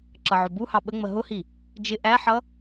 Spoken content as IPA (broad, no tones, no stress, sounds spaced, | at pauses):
ǁ ʌ ʕ ʊ b u h ɑ ɓ ə ŋ͡m ə ɦ ʊ h i | d͡ʒ ɪ ʔ æ ħ ʌ